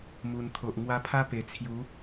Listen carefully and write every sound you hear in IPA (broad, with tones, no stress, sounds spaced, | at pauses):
m u˨˩ n t̪ʰ o˨ ʔ ŋ w a˧ pʰ a˦ p e˨˩ t͡sʰ j u˨˦